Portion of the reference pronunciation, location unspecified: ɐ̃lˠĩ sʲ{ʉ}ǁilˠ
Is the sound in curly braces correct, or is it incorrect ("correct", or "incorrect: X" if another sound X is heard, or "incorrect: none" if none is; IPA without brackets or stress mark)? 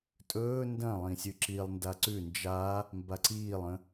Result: correct